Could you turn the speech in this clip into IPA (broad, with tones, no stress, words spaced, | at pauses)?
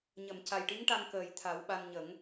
ɲə˨˩˨mca˨˩jʈi˧˥ŋʈa˧ŋ kəː˨˩jt̪ʰa˨˩˦wɓa˧n ɲə˨˩˦ŋ